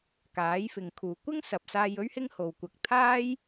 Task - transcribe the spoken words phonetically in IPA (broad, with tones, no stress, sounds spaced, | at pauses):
k aː˨˥ j f ɪ˨ ŋ kʰ uː˨ kʷ ɪ˥ ŋ s ɐ˨ p̚ s aː˧ j ɵ˥ ɥ h ɪ˥ ŋ h o˨ w kʷ ɐ˧ k̚ t̪ʰ aː˥ j